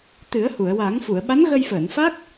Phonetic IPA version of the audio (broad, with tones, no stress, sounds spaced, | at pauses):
t̪ ɨ˨˩˦ ə̯ h u˨˩˨ ə̯ w a˨˩˦ ŋ f u˨˩˨ ə̯ ɓ a˧˥ n ɣ ə˧ j f əː˨˩˨ n f a˦˥ k̚